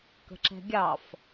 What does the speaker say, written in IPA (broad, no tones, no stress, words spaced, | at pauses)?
kə̤ǁɛ̤ɡʲɑf